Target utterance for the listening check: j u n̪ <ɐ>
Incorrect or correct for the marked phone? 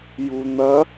correct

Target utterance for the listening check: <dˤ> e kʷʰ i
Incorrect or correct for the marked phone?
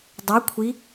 correct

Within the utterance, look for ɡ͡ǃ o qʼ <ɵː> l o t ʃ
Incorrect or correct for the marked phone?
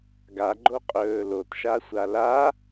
correct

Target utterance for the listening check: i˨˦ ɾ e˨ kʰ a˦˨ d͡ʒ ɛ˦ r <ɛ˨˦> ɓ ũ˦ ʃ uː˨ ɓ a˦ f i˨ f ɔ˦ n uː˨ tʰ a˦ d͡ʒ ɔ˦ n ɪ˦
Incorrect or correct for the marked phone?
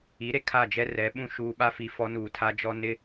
correct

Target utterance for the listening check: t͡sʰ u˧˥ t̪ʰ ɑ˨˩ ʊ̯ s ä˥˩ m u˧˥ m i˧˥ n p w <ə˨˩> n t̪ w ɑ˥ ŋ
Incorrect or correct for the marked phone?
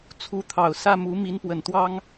correct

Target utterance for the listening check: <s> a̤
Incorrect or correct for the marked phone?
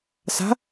correct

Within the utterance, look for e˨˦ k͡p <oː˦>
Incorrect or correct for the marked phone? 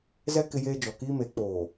incorrect: oː˨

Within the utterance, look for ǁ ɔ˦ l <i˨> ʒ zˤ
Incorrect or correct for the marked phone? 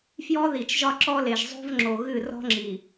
incorrect: e˨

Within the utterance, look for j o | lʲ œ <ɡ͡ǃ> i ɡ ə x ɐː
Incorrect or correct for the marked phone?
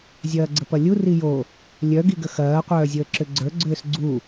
incorrect: ɡ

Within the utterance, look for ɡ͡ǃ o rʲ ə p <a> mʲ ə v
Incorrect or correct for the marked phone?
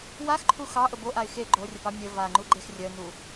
incorrect: ɑ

